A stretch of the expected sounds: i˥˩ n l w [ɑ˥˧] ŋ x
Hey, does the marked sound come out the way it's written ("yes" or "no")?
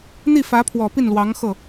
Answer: no